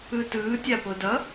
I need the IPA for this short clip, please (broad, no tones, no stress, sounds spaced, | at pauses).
ɯ t ɯː tʲ a p o d ʌ